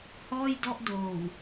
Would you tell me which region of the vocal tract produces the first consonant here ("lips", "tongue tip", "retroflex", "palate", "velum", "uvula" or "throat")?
throat